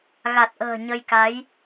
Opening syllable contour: low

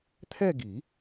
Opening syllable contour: falling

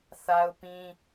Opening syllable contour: high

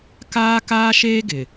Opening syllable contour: high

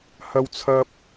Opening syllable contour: high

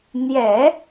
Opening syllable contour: low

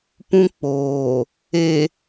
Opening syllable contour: high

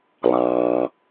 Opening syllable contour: low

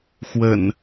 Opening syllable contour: low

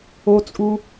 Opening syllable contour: low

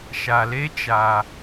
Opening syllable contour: low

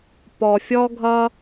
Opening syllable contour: low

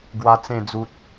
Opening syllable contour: high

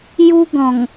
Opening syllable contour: high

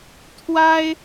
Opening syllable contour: high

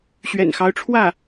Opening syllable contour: low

